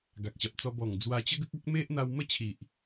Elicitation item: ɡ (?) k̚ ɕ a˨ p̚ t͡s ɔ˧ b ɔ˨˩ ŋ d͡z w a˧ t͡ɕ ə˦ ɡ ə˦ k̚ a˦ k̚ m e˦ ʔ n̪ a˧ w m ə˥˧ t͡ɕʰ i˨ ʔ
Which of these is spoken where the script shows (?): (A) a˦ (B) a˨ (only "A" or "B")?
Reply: B